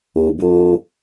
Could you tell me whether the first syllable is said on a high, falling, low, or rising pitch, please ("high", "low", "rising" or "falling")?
low